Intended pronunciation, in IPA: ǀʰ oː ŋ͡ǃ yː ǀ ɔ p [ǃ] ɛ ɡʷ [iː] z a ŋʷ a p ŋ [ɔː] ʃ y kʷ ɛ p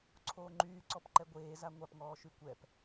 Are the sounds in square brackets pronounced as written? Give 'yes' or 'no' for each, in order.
yes, no, yes

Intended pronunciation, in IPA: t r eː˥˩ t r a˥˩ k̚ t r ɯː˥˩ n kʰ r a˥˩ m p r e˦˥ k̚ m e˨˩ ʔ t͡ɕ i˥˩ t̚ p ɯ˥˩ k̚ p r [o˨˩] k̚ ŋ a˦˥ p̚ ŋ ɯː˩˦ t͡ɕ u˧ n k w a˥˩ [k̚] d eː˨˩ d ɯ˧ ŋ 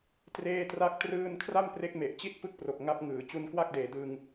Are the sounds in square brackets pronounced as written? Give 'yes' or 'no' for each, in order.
yes, yes

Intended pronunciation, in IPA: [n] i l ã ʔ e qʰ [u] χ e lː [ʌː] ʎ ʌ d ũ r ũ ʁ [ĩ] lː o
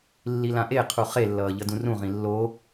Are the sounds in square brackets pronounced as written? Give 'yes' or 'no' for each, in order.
no, yes, yes, yes

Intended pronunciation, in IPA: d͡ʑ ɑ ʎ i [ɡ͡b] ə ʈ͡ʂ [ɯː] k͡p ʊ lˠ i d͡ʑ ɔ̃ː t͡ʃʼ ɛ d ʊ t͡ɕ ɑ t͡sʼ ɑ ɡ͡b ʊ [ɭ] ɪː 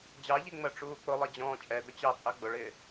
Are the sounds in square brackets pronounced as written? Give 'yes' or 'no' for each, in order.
no, no, yes

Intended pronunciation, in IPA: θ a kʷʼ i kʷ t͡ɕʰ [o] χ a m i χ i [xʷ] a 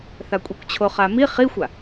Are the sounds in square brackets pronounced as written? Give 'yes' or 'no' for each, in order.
yes, yes

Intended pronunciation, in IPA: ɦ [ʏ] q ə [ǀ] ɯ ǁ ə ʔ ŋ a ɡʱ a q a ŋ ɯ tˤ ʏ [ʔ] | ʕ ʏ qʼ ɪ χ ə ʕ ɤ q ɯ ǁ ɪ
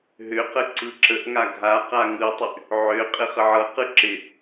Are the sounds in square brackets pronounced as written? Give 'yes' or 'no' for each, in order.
yes, yes, yes

